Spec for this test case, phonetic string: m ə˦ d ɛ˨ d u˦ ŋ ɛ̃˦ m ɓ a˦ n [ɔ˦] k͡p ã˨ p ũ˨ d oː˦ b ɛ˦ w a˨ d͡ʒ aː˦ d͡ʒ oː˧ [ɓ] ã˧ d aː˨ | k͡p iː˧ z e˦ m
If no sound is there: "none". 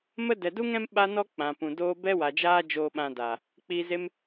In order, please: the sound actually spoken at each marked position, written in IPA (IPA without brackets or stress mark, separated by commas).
ɔ˦, ɓ